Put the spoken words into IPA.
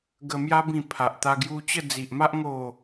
ɡ ə˧ m j a˦ b ĩ˧ pʰ a˨ ʔ t̪ a˧ ɡ j u˧ t͡ɕ ə˥˧ d͡z i˨ ʔ m a˦ ʔ ŋ o˥˧

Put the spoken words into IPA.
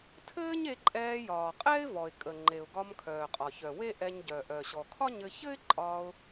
tʰ ɘː˥ ɲ e˧ ǃʼ ɛː˧ j ɒː˩ qʼ ɛː˥ ɪ̯ v ɔ˩ ɪ̯ kʼ ə˩ ŋ͡ǃ e˩ ʊ̯ ɡ ɒ˧ m kʰ œː˩ qʼ ɒ˩ ç œ˩ w e˥ ʔ ɛ˧ ɲ ɟ œ˩ ʔ œ˩ ɕ ɔ˩ kʰ ɒ˥ ɲ ɘ˧ ç ɘ˥ ɪ̯ ǃʼ ɒ˧ ʊ̯

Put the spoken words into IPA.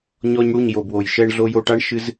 ɲ ɔ˧ ɲ ɽ u˦˨ ɲ j o˨ b w o˨ j ʃ ɛ˧ ɳ ɮ o˧ j o˧ ʈ a˦ ɳ ʃ ɨ˦ z

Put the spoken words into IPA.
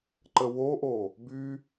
ǃ ə w o ʔ o | b y

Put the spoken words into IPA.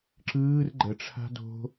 ǁ ɯː r ɡ͡ǃ ə ʈ͡ʂʰ a̤ d o̤

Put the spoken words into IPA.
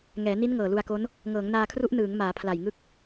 ŋ ɛː˩˦ n i˦˥ n ŋ ɤː˨˩ l u˧ a̯ k o˦˥ n | ŋ ɤː˩˦ ŋ n aː˧ kʰ r u˦˥ ʔ n ɯː˩˦ ŋ m aː˩˦ pʰ l a˨˩ j ŋ ɯ˦˥ k̚

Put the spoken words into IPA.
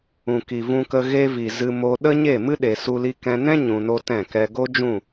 ũ˨ k i˨ v ũ˧ k ə˧ ɣ e˧ v i˨ z ɨ˧ m o˧ ɗ ə˦ ɲ e˦˨ m ɨ˦ ɗ e˨ s u˧ l i˧ k ɛ̃˧ n ɛ̃˦ ɲ ũ˨ n o˧ t ɛ̃˦˨ k ɛ˧ ɡ o˦ d͡ʒ ũ˦˨

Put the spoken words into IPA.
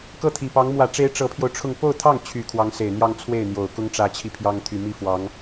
k ɤ˥˩ t̪ʰ i˨˩ p ɑ˧˥ ŋ m w ä˨˩ ʈ͡ʂ e˧˥ ɪ̯ ʈ͡ʂ ɤ˧˥ pʰ j o˧ ʊ̯ ʈ͡ʂʰ ʊ˥˧ ŋ p o˥˧ ʊ̯ t̪ʰ ɑ˥˩ ŋ t͡ɕʰ y˨˩ kʰ w ɑ˧˥ ŋ s e˨˩ ɪ̯ n̪ j ɑ˥˧ ŋ t͡sʰ w e˥˩ ɪ̯ n̪ j o˨˩ ʊ̯ k ʊ˥ ŋ ʈ͡ʂ ä˧˥ t͡ɕʰ i˧ pʰ j ɑ˥ ŋ t̪ʰ y˨˩ m i˥˩ f w ɑ˧˥ ŋ

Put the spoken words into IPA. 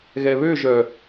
ɣ ɛ β ø ʒ œ

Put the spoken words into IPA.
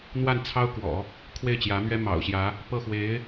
n̪ w a˥˩ n t͡sʰ ɑ˥ ʊ̯ k w ɔ̰˨˩˦ | kʰ w e˥˩ ɪ̯ t͡ɕ j ä˧˥ m ɥ ɛ˥ m ɑ̰˨˩ ʊ̯ ɕ j ä˧˥ | p ɤ˥˩ x w e˧˥ ɪ̯

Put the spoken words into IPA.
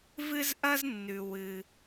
v ɨ˥ z ʔ ɐ˥ z nː ʉ˩ w ɨ˩

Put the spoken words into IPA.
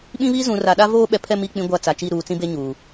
ɓ ĩ˦ β i˦ z ũ˨ r a˨ ɗ a˦ v oː˦ ɓ ɛ˨ pʰ ɛ˦˨ m i˦˨ k͡p ĩ˦ ɡʷ a˦˨ t͡s a˨ t͡ʃ i˦˨ ɾ uː˨ t͡s ĩ˦ b e˦ ɲ uː˨

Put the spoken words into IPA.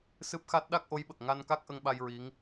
s ɨ˦˥ p̚ x a˦˥ t̚ ɗ a˦˥ k̚ ʔ o˧˥ j ɓ ə˨˩ k̚ ŋ a˧ n k a˦˥ k̚ ʔ ə˧ ŋ ɓ a˧ j ɹ i˧˥ ŋ

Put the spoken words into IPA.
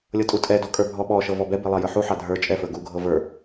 lʲ ɤ tʼ u tʼ ɛ d ɔ kʼ ə˞ bʱ ɔ ɓ ɔ ʃ ɤ v ɔ b ɛ b e lˠ ɑ j ə˞ ħ u ħ ɑ dʱ ə˞ t͡ʃʼ ɛ f ə˞ ɡ u ɡʱ ɤ v ə˞

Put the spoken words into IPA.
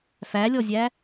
f æ lʲ ɔ zʲ æ

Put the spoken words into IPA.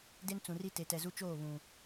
d e˦ n t͡s ũ˨ r i˦ t e˨ t ɛ˨ z u˦ t͡ʃ oː˦˨ β ũ˨

